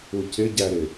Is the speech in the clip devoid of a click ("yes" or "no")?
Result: yes